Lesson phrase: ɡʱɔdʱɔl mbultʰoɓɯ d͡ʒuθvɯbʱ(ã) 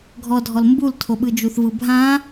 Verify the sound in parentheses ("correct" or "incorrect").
correct